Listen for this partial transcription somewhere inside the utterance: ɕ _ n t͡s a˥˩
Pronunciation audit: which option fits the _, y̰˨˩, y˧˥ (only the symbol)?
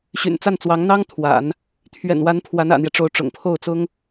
y̰˨˩